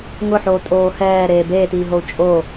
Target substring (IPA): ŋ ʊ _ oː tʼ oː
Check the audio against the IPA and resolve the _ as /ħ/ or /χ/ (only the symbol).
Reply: ħ